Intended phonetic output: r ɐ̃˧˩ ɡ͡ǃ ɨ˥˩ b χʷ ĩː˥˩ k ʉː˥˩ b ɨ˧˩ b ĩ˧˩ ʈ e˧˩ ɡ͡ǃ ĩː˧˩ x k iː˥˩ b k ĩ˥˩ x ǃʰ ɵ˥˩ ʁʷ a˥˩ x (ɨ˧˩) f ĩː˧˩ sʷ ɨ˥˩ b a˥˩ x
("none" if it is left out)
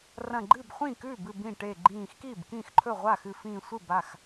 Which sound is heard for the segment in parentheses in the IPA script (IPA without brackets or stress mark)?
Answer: ɨ˧˩